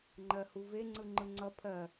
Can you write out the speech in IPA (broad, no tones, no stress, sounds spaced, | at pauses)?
ŋ͡ǃ ɜ h u v e ŋ͡ǀ ɯ ŋ͡ǃ ɯ ŋ͡ǀ ʌ pʰ ɜ